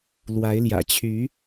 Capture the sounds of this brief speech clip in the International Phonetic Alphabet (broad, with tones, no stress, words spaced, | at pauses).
lwa˨˦ɪ̯ljä̰˨˩ t͡ɕʰy˨˦